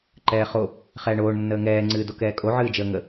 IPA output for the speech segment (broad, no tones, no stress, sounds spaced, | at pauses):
ǃ ɛː χ o | χ ɛː ɳ oː ɳ nː əː ŋ ɛː ŋ͡ǀ ɨː d o k ɛː kʼ o ʕ ɨː d͡ʒ əː ŋ ə